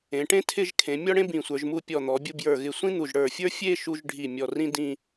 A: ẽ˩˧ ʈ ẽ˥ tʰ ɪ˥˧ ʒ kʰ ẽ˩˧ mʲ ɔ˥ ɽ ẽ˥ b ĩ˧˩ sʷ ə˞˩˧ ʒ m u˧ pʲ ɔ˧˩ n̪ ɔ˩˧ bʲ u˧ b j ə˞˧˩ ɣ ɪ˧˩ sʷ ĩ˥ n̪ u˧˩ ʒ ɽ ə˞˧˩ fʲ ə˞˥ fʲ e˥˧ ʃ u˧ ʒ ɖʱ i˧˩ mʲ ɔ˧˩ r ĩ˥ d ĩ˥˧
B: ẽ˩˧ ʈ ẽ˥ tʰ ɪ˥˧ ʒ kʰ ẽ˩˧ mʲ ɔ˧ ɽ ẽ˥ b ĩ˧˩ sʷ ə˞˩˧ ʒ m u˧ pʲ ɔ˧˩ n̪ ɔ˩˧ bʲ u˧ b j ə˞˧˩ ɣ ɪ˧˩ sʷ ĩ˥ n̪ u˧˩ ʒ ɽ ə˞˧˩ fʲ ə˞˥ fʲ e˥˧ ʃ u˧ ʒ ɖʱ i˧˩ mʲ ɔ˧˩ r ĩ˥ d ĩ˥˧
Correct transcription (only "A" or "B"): A